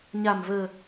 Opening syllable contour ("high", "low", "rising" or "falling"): low